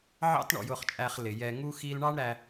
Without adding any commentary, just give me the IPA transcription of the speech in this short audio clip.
ʕɑ̰˥tɳɔ̰˧jʊ˧χt͡ʃʼæ˧χ lɪ˩ jɛ˧ŋu˥ xi˥l ɳɑ˥ɳɾæ˧

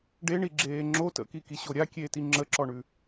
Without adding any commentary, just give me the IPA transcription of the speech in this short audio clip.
ɖeɳi ɡ͡ǁeːŋ͡ǁo tə̰kiki ɕoɾʲakʲeːti ŋ͡ǁəǁɔɳʉ

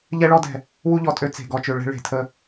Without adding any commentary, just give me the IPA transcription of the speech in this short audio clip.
ʎɛ˦ɭɔ˦dɛ̤˨ | wu˦ʎɔ˨tʼø˦ t͡se̤˨ɡɔ˨t͡ʃø˨ ɭɛ̤˦ɭe̤˨tʰə˦

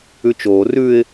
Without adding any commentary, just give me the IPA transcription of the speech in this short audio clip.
ʉt͡ʃoː rʉɪ̯

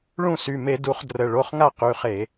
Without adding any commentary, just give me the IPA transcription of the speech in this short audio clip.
ɭũ˥˩sy˩˧˩me˧˩˧ du˧˩˧χdrə˩˧˩ɭo˩˧˩χŋa˥˩ qy˩˧˩χe˧˩˧

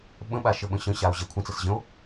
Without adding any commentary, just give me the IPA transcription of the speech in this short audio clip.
ɓə̃ɓa ʃəɓə̃ɕə̃ɕao̯ ʑɛkʷʰə̃t͡səs ʑə̃o̯

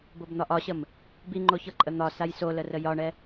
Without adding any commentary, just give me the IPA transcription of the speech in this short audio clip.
bobn̪ɒʔɒɕəm | biŋ͡ǃoçɤǃʼə n̪ɒ sajsolərə jɒɳɛ

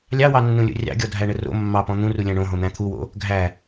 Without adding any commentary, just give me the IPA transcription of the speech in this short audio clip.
lʲɑwɑnːũlʲo̰ rʲɑ̰ɡʲɔdʱæɳə ro̰ mːɑpɔ̃ n̪ũrulʲæ̃ ɳõɦõn̪æ̃ t̪ʰuwo̰ | ɡʱæ

